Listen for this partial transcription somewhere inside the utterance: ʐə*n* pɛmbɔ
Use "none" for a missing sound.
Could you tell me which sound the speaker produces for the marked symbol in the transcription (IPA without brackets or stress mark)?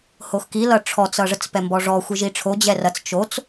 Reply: t͡s